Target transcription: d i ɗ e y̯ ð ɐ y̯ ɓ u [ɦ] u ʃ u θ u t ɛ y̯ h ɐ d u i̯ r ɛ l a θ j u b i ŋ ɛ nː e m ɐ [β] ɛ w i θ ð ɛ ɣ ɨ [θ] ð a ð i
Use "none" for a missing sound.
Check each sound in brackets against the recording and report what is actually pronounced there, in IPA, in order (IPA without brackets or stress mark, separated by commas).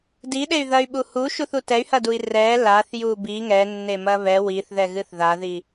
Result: h, β, θ